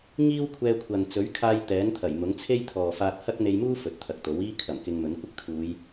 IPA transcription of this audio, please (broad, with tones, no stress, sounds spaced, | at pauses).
ŋ iː˥ w kʷʰ ɛː˧ kʷʰ ɐ˨ n t͡s ɵ˨˥ ɥ kʰ aː˧ j t̪ ɛː˨˥ n t̪ʰ ɐ˨˩ j m ʊ˨˥ ŋ t͡sʰ e˥ j t̪ʰ ɔː˨ f aː˧ t̚ h ɐ˥ k̚ n̪ e˧ j m uː˥ f ɵ˨˥ t̚ t̪ʰ ɐ˨ k̚ t̪ o˨˥ w iː˥ kʰ ɐ˨˩ m k ɪ˧ ŋ m ɵ˨˥ n kʷ ɪ˥ k̚ t̪ʰ uː˨˧ j